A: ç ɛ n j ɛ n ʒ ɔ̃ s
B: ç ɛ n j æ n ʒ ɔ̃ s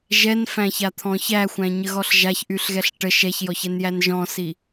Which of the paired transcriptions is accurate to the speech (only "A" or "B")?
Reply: B